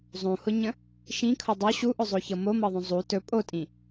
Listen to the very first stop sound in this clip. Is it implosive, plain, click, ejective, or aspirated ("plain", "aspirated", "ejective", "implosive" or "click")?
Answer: aspirated